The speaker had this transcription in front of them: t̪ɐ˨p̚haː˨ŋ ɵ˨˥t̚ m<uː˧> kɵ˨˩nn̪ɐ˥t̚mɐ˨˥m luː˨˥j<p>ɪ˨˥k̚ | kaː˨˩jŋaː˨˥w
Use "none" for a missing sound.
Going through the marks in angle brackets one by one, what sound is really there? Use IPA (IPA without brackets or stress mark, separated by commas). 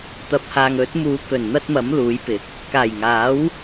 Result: uː˨˥, p